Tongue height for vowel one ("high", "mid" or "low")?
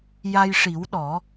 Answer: low